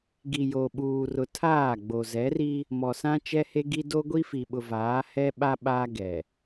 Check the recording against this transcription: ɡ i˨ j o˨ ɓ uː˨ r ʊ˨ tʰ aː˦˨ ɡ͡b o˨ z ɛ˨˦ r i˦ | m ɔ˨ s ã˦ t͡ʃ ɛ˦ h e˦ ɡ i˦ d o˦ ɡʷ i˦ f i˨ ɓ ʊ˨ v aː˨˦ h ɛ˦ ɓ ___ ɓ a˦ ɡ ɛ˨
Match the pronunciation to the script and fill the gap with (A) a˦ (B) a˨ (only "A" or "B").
A